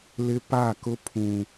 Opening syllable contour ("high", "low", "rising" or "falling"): high